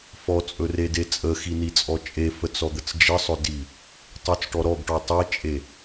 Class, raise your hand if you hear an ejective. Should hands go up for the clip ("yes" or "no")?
yes